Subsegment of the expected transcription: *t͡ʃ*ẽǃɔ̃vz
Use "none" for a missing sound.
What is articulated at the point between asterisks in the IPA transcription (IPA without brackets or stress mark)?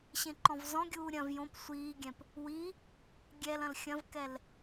ɕ